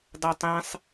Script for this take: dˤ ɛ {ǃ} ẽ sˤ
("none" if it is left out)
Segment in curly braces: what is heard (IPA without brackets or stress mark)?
tˤ